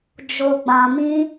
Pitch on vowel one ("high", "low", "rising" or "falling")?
low